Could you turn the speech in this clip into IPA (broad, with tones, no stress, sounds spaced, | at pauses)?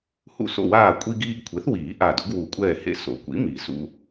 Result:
h ṵ˧˩ s o̰˧˩ w aː˧˩ kʷʼ i˧ ɡ iː˧ ɡ kʷʰ e˩˥ θ w iː˨˩˦ ʔ a˧˩ d ʊ˩˥ ɡ w u˨˩˦ kʷʼ ɛː˧˩ h ḛ˧ s o̰˨˩˦ kʷ ḭ˩˥ m i˨˩˦ s ṵ˧